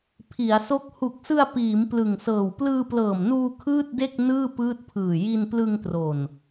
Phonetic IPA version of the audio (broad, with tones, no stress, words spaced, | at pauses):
pʰi˩˦a̯so˦˥k̚ hu˨˩k̚sɯ˧a̯ piː˩˦m plɯ˨˩ŋsɤː˨˩w plɯː˧plɤː˨˩mnuː˧ kʰɯː˥˩t̚de˥˩k̚ nɯː˥˩pɯː˦˥t̚pʰɯː˨˩ ji˧nplɯ˧ŋ tro˨˩n